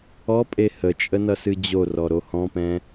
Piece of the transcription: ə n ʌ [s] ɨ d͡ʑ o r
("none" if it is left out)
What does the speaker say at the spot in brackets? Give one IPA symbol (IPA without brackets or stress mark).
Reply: s